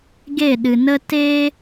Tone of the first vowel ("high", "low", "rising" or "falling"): falling